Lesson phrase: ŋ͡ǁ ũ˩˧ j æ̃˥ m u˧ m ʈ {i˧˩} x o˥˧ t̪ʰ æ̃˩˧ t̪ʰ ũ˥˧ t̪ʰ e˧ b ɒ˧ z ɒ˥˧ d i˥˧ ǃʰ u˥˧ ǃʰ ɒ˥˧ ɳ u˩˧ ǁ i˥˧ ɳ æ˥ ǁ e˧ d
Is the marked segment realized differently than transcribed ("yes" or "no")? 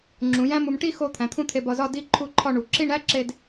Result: yes